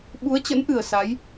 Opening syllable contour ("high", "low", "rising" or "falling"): rising